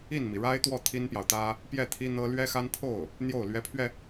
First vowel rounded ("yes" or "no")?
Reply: no